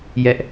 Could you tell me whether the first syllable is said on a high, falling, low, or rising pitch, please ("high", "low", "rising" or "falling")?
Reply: high